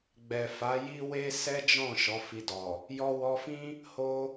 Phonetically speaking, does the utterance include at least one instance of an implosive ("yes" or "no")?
no